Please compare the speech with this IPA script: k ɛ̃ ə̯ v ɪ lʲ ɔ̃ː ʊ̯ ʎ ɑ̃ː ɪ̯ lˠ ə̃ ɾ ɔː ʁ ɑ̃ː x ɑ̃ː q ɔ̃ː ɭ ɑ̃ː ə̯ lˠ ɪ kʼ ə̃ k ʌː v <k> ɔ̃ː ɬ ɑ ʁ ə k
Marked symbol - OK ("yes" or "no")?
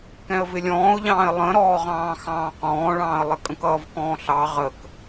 yes